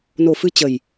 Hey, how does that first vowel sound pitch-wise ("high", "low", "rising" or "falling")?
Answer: low